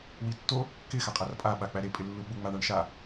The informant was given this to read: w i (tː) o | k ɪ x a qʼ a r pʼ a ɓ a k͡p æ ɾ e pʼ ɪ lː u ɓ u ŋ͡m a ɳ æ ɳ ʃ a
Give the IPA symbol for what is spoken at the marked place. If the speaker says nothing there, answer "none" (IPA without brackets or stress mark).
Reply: tː